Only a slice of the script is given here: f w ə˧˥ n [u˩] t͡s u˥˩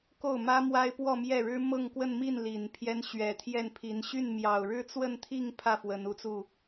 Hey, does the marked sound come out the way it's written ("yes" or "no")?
no